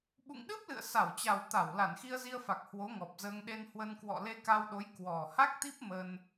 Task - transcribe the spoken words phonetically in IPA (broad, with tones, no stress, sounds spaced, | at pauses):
ɓ ṵ˧˨ ŋ ɗ ɨ˦˥ p̚ l ɨ̰˧˨ ə̯ s a˧˩ w t͡ɕ a˨˩ w t̪ a˧˩ w l a˧˩ n x i˧ ə̯ z i˧ ə̯ f a˨˩ k̚ h w o˨˦ ŋ ɔ˨˩ p̚ z əː˧ ŋ ɗ e˧ n h w ə˧ n k w ɔ̰˧˨ l e˧ k a˧ w ɗ o˨˦ j k w ɔ˨˩ h a˦˥ k̚ t̪ i˦˥ p̚ m ə˧ n